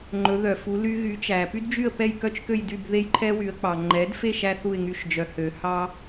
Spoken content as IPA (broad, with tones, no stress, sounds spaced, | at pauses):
ŋ͡ǃ ɵ˩˥ ð œ˩ f u˩˥ l y˧ ɣ y˩˥ t͡ʃ æ˩ p y˥ d d͡ʒ y˥˩ ə̯ p ɛ˥˩ j k œ˥ t͡ʃ k ø˥˩ j d y˥˩ b ð e˥ j ǃʰ ɛ˥ w y˩˥ ə̯ k͡p ɑ˩ ŋ͡ǃ ɛ˩˥ d f e˥˩ ʃ æ˧ θ u˥˩ ɪ̯ ŋ y˧ ʃ d͡ʒ œ˩ h ø˩ h ɑ˥